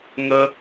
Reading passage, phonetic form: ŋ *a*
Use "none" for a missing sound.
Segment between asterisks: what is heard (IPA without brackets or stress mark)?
ə